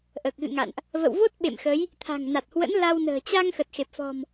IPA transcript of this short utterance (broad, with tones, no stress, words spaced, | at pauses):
ʔəː˨˩k̚ɣɨ̰˧˨ŋa̰˧˨nʔ | və̰˧˨wvo˦˥t̚ ɓḛ˧˨mxə˨˦j | t̪ʰa̤˨˩ŋna˨˩t̚hwə̰˧˥n la˧wnə̤ː˨˩ t͡ɕa˧ŋxə˨˩t̚xe˨˩p̚ fɔ̤˨˩m